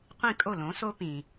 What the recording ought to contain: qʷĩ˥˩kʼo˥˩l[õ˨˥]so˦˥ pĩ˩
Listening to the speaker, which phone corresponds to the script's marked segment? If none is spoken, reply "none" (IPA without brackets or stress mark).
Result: õ˨˥